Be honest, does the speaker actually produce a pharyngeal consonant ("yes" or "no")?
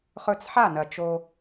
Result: yes